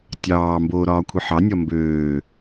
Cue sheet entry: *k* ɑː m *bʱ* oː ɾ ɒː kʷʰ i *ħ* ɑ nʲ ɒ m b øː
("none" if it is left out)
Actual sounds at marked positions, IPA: tʲ, b, ħ

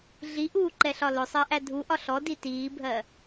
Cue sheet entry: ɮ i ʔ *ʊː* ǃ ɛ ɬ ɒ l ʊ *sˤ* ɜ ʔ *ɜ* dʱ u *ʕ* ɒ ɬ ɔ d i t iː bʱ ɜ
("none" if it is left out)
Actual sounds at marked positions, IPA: uː, sˤ, æ, ʔ

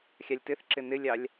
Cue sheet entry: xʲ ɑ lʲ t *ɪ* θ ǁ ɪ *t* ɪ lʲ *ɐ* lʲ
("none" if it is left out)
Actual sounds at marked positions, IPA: ɪ, n, ɑ

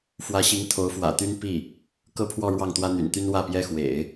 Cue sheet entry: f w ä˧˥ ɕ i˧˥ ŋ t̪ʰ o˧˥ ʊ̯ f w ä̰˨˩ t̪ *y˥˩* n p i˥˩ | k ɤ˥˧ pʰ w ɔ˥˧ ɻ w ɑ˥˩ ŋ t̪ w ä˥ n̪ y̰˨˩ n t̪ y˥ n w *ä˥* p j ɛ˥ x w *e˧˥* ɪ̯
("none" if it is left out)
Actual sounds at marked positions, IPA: y˥, ä˥˩, ḛ˨˩˦

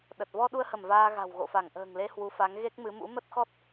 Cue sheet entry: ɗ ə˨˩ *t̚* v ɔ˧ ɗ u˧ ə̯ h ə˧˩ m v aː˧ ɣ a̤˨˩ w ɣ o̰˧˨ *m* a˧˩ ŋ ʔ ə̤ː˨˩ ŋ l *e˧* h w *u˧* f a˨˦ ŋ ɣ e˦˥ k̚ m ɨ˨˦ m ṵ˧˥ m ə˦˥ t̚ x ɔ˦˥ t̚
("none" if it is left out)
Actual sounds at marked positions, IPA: t̚, f, e˧, u˨˦

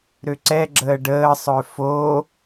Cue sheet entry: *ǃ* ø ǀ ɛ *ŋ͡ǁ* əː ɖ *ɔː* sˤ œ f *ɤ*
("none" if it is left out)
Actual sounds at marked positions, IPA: ɾ, ɡ͡ǁ, əː, o

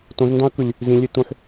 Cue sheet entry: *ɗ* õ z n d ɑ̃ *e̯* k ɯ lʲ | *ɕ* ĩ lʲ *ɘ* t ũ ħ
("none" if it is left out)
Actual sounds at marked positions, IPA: t, ɐ̯, z, e

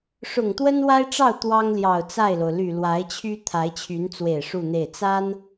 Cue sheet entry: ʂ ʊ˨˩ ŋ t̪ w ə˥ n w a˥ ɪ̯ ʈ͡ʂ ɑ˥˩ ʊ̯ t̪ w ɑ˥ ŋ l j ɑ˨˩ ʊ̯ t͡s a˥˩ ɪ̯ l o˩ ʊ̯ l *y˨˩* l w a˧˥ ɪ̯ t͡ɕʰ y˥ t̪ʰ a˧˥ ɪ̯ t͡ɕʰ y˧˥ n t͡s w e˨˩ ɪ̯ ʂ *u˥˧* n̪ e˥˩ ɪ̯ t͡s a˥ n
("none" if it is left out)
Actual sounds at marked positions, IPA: y˨˩, u˥˧

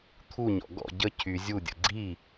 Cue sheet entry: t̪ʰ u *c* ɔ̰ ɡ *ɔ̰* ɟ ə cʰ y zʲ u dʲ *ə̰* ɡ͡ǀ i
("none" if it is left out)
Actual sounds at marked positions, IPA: ɲ, ɔ̰, ə̰

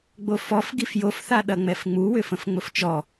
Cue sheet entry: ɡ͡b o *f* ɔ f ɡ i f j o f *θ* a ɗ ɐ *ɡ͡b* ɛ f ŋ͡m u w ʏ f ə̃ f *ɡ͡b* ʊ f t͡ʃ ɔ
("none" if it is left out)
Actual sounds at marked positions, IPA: f, θ, ŋ͡m, ŋ͡m

